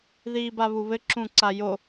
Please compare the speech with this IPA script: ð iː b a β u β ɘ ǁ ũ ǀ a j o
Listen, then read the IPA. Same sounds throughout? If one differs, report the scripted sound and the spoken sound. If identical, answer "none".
none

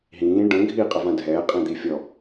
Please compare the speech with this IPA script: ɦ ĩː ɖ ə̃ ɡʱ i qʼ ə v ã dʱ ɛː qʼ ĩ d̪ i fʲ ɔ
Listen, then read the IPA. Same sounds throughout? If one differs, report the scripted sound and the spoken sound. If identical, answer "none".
none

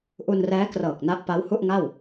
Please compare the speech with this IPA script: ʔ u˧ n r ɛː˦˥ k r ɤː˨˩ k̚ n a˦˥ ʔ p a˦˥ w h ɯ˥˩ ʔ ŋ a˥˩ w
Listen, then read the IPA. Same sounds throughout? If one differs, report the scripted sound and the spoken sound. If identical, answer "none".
ɯ˥˩ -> u˥˩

